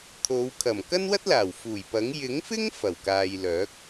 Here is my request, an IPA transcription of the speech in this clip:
t̪ʰo˨˧w kʰɐ˨˩mkɐ˥nwɐ˥t̚laː˨˩w fuː˨˩jpɐ˨˥ŋ jɪ˨˥ŋfɪ˥ŋ fɐ˨˩wkaː˨jlœː˨˥k̚

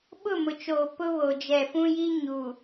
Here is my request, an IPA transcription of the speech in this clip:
ɓʊ˦˨mʊ˨t͡ʃoː˨ pʊ˦ βoː˨d͡ʒɛ˨fũ˦ji˦ ɲu˨

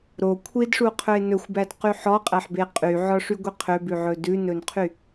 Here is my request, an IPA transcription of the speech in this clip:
ɾo kʷʰidʂuqʰɵe̯ nɵxʷbædqy ħɔqʼæħbe qʼyʕɔʂyɡʷi qʰøbʉʕɵ dʉnɵnqʰy

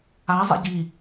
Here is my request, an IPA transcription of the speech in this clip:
a zˤɛ̰ɟi

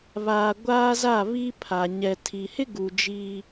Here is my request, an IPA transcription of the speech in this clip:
βaː˨ ɡʷaː˦za˦˨βi˦pʰa˨ ɲɛ˨ tʰi˨ hɪ˦ɡu˨ d͡ʒiː˦

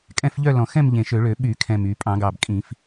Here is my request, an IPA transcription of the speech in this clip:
kʼɛ̃˥˧fʎœ˥˧ lɔ̃˨˩xɛ̃˥˧mʎẽ˨˩ ʃø˧˩˧ɭø˧˩˧ ɓy˧˩˧kʰɛ̃˨˩m y˧˩˧ pʼɑ̃˧˩˧ɡɑ˨˩bkʼĩ˧˩˧f

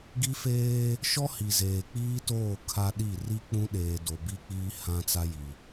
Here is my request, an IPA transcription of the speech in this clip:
ɡi˦feː˦ | ʃɔ˦ hi˨zeː˨k͡piː˦toː˦˨ kʰa˦ɗi˦˨ ri˦k͡pũ˦ɗeː˨do˨ bi˦k͡piː˦ hã˦t͡sa˦ji˨

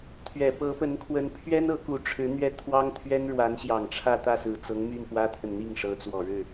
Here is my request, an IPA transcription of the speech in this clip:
t̪ʰɥɛ˨˩ pɤ˧˥pə˧˥nkʰwə˧˥n pʰɥɛ˥n ɤ˧˥ku˧˥ʈ͡ʂʰɻ̩˧˥n̪ɥɛ˥˩ t̪ʰwɑ˥ŋt̪ʰɥɛ˥n ɻwa˧˥nɕjɑ˨˩ŋʈ͡ʂʰä˥˧ t̪ä˥˩sɹ̩˨˩ t͡sɤ˧˥ŋmy˥˩n pwä˥t̪ʰə˨n n̪i˥˩ŋʂɤ˧˥t͡swɔ˨˩ɻɻ̩˥˩

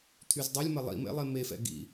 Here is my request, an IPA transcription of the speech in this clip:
t̪ʰyzdˤilʲ mɐlˠḭmḛ lˠemefɛ̰ ɡḭ

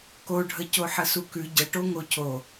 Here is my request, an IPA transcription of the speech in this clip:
koɖʱəcoħə sukʉ ɟəʈo ŋocʰo

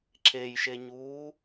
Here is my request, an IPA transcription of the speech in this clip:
ǁejʃeɲuː

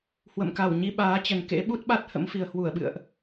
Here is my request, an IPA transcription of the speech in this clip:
hwə̰˧˨mka˧˩w ɲi˧ɓaː˨˦t͡ɕə˨˩n kḛ˧˥ɓu˦˥t̚ɓa˦˥t̚ hə̰˧˥mfi˨˩ə̯hwu˧˩ə̯ɓɨ̰˧˨ə̯ʔ

